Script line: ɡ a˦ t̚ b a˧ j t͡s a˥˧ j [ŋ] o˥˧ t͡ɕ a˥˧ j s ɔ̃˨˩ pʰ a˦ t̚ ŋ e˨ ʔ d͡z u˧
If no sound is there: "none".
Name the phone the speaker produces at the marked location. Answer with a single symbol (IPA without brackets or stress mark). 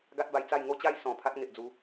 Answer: ŋ